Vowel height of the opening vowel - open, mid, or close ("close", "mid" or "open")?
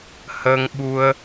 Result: mid